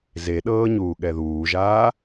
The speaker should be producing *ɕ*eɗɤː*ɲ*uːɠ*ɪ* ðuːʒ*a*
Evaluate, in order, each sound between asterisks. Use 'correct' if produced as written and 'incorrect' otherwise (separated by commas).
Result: incorrect, correct, incorrect, incorrect